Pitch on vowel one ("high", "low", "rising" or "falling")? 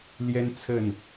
high